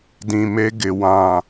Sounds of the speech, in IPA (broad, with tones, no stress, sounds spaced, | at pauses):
d ĩ˨ m e˦ ɡ ɪ˨ w ã˨